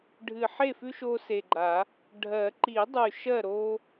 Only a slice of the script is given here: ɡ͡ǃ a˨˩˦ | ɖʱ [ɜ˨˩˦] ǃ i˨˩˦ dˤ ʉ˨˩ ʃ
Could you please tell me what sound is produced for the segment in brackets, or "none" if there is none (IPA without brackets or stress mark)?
ɜ˨˩˦